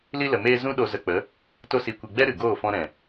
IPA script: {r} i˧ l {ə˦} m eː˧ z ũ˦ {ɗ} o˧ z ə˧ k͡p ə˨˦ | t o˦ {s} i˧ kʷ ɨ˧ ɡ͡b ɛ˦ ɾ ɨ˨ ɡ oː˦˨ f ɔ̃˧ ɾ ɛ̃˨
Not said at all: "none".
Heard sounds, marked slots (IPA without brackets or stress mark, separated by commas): l, ə˨, ɗ, s